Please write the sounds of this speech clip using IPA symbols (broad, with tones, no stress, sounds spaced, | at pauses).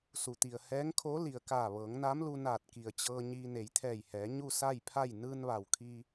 s u˩ t̪ i˩ ə̯ h ɛː˧˥ ŋ kʰ o˧˥ l i˩ ə̯ k aː˧˩ ʋ ɤː˩˧ ŋ n a˧˥ m l u˧ n aː˧˩ t̚ k i˩ ə̯ t͡ɕ ɤː˧ ɲ iː˧ n e˩˧ j t̪ʰ ɛː˧˩ j h ɛː˩˧ ɲ u˥˨ s a˥˨ j pʰ a˥˨ j n ɯː˧ n ʋ a˩ w kʰ iː˧